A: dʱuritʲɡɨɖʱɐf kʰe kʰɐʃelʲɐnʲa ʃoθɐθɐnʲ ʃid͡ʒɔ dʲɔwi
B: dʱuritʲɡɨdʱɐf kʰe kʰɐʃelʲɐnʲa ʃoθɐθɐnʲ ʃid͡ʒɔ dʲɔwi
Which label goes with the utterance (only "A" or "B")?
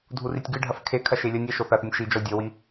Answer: A